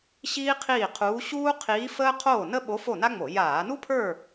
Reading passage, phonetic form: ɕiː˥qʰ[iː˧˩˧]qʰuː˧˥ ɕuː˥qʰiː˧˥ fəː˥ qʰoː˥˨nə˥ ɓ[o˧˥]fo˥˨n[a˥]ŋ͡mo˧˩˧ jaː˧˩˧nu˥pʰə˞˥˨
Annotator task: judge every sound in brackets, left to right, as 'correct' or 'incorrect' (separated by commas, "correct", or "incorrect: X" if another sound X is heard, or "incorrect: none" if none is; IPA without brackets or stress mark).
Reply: incorrect: iː˥˨, correct, correct